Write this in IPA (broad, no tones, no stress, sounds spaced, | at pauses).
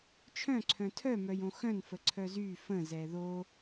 t͡ʃʰ œ̃ ǀʰ œ̃ tʰ œ m œ j õ x œ̃ n f ə ǀʰ œ z y f ə̃ z ɛ ð o